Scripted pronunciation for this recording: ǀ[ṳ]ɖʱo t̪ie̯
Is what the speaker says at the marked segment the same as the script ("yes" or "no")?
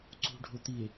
yes